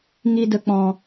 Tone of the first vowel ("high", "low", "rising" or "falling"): low